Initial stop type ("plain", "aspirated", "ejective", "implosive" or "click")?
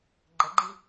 click